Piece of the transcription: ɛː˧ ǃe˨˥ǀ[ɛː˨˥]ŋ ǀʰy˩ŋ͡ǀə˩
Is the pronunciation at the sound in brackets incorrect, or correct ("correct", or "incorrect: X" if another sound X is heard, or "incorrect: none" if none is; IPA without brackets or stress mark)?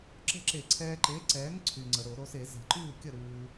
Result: correct